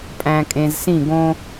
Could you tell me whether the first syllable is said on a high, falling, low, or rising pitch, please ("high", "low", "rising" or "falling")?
low